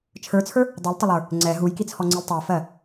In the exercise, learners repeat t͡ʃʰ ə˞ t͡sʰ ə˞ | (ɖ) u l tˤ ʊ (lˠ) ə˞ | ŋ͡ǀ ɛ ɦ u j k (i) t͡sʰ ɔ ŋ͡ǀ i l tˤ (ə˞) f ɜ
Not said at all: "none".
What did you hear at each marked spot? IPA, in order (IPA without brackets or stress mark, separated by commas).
dˤ, lˠ, i, ə˞